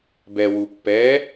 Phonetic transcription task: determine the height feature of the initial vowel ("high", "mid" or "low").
mid